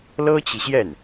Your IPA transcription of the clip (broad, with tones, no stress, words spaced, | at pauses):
lɤ˥t͡ɕi˨ɕjɛ˥˩n